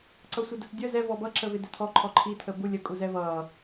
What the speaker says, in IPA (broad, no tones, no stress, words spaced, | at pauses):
ǀʌsʷɪdʊt dʲə zɛ vɔbʌǁəvɪ dɛtʰɔ ǃʰɔǃʰitʰə bu lʲə kʼuzɛvʌː